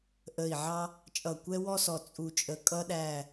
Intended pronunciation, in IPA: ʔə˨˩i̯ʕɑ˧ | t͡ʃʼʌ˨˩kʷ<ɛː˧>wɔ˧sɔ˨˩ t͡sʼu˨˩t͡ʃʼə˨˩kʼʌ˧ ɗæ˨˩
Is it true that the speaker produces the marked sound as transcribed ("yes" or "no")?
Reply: no